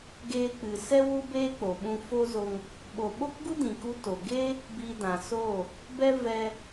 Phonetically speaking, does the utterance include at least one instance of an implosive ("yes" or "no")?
yes